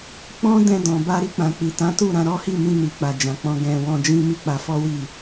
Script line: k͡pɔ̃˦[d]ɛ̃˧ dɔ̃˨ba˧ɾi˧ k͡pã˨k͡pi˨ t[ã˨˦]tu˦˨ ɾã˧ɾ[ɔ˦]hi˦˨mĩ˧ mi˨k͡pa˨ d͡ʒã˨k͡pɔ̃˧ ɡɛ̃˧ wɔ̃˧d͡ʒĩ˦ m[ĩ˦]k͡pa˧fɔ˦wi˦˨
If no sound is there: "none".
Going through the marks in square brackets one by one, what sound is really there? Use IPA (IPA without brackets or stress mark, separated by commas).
d, ã˨˦, ɔ˦, i˦